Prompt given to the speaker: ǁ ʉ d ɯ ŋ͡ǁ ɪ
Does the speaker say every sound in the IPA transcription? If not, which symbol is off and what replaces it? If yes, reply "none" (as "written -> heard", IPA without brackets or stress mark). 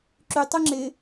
d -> tˤ